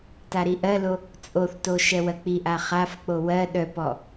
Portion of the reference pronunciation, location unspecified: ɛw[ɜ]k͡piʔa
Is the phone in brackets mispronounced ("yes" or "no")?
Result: no